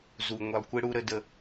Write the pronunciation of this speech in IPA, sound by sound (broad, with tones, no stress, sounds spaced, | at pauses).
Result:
z u˨ ŋʷ i˨ lˠ kʷ ɪ˦ ɽ u˦ ɾ ə˦ d ə˦